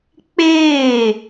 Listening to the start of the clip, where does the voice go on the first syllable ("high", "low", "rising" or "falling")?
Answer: falling